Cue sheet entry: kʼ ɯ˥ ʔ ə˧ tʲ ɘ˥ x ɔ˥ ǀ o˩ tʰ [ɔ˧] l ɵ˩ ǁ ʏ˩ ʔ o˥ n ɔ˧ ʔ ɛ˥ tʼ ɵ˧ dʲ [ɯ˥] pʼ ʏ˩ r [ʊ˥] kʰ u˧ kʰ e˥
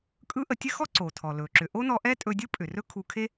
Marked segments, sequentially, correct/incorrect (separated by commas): incorrect, correct, incorrect